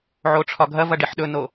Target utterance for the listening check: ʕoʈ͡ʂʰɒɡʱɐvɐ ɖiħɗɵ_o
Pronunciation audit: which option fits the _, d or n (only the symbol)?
n